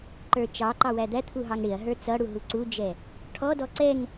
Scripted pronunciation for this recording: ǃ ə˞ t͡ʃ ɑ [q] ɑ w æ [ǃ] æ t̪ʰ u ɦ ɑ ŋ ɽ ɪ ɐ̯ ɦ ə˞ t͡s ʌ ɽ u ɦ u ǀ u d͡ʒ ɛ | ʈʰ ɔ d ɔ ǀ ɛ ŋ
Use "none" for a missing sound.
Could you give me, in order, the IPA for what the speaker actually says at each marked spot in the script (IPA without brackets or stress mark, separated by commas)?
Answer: ǃ, d̪